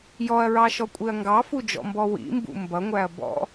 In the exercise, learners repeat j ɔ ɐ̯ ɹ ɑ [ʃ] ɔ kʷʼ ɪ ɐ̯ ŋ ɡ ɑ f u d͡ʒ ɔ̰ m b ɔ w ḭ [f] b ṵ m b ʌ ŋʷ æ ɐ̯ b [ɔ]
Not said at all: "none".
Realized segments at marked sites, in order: ʃ, m, ɔ̰

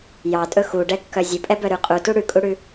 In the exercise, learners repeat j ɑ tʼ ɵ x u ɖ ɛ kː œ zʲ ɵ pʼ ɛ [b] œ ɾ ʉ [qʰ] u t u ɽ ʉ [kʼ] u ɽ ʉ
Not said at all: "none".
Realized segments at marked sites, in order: b, qʼ, kʼ

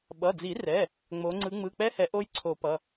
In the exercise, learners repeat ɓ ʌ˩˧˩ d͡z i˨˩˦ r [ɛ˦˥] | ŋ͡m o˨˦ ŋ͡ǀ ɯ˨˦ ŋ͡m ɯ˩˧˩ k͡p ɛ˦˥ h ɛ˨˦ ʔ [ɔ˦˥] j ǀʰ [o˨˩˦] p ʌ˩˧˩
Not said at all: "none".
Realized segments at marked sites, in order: ɛ˩˧˩, o˦˥, o˨˩˦

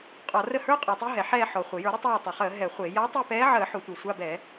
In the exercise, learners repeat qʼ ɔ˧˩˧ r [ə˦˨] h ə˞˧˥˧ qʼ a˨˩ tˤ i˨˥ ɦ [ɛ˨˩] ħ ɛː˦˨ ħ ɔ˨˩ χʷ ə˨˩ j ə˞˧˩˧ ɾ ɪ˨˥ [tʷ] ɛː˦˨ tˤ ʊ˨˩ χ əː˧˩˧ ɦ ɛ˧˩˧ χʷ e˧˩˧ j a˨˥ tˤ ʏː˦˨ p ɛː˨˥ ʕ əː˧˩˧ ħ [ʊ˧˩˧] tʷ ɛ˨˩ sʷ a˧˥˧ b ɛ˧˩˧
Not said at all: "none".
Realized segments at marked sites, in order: ə˦˨, ɛ˨˩, tˤ, ʊ˧˩˧

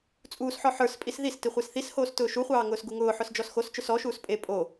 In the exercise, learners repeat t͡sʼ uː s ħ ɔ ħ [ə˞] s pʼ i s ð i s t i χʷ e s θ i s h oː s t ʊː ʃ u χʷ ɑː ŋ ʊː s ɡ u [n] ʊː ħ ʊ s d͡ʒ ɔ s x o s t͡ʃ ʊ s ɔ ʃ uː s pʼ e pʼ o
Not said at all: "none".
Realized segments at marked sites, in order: ə˞, ŋ

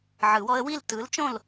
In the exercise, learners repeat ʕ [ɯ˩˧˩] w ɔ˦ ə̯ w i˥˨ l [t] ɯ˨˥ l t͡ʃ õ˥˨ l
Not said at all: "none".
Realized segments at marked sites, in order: ɯ˨˩˦, t

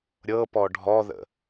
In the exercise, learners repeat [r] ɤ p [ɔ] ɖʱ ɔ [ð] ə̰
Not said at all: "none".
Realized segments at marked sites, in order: ɾʲ, ɔ, ð

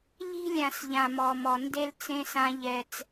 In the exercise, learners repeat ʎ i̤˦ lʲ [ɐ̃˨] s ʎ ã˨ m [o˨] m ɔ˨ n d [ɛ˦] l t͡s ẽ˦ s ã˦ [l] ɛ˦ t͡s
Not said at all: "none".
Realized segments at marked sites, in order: ã˨, ɔ˨, e˦, ʎ

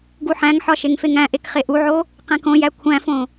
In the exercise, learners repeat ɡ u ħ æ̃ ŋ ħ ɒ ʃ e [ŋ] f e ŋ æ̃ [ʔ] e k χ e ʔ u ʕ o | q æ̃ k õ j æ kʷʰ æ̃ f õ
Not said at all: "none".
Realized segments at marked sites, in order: ŋ, ʔ

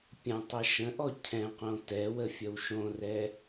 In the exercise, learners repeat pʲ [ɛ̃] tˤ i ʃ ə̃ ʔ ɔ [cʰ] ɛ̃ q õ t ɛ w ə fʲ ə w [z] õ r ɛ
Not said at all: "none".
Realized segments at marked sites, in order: ə̃, cʰ, ʃ

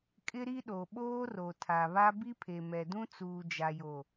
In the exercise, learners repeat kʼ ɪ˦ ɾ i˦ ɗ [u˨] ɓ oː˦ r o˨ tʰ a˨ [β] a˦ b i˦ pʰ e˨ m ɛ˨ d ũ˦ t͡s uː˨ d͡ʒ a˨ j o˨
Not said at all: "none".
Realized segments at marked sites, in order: o˨, β

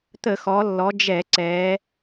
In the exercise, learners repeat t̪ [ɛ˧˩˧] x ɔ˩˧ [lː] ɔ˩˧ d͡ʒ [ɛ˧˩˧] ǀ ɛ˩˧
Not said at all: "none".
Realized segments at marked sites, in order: ə˧˩˧, lː, ɛ˧˩˧

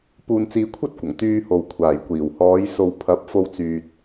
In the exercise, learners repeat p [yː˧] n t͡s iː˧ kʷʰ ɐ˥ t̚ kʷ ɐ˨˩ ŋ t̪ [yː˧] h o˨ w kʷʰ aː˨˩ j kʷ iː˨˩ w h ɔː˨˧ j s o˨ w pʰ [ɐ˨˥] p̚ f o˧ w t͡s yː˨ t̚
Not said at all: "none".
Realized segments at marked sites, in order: uː˧, yː˧, ɐ˨˥

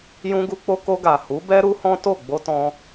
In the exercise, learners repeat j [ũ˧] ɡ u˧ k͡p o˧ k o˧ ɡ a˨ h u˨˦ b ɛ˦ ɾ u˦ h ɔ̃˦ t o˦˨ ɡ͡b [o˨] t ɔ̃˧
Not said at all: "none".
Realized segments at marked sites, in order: ũ˧, o˧

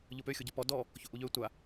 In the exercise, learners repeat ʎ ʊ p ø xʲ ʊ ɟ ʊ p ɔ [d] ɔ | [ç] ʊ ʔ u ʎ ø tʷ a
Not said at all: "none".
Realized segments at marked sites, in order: d, ç

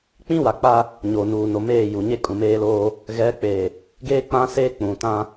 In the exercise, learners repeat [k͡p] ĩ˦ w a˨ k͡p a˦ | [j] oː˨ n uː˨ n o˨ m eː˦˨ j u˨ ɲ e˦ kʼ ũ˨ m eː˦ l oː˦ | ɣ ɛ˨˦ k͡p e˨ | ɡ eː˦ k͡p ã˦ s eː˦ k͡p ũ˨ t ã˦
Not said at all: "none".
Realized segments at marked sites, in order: k͡p, ɲ

